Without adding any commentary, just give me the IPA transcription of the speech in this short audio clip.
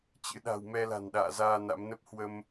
t͡ɕɨ̰˧˥ɗa̤˨˩w mɛ˧la̤˨˩nɗa̰ː˧˨zaː˧ na̰˧˥mnə˦˥p̚ hwə˧m

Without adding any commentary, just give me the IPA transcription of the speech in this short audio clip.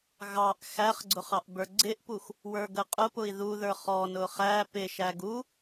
ɣɑʔ xæχɡ͡ǀʊχ ɑʔbə˞ɡ͡ǀɪʔpux | wə˞ɡəqʼʊpʊi̯ ðuðə˞ χɔnʊ χæ pɪʃæɡ u

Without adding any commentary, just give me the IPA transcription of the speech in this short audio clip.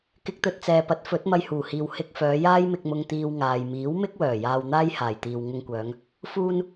kɪ˧k̚t̪ɵ˧t̚t͡sɛː˨ pɐ˨˥t̚fɵ˨˥t̚ mɐ˧jhuː˨˩hiː˨w hɪ˧k̚fœː˨˧ jaː˥jmɪ˧k̚mʊ˧ŋ t̪iː˥wŋaː˧j miː˨˥wmɪ˥k̚wœː˨˩ jaː˧wn̪aː˥jhaː˨˩jt̪iː˨w ŋʊ˧ŋkʷœː˨˧ŋ | fuː˧n

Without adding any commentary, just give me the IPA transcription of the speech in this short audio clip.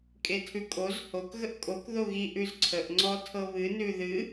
kʼetʰʉkʼoz hok ɣəʔkʼok ðoɣi ʔʉzǀʰəʔ ŋ͡ǀɔtʰɤβɨ nʉðɨ

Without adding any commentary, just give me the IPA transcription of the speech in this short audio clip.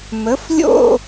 mə˨˥flʲo̰˥˧

